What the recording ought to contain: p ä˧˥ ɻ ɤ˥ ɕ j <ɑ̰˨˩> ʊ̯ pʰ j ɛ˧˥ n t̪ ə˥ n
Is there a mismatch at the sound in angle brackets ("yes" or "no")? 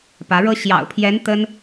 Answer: no